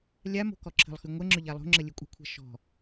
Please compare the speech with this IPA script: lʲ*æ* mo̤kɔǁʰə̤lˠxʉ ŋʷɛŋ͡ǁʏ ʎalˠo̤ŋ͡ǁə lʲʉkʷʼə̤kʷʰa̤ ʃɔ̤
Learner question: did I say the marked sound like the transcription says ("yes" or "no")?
no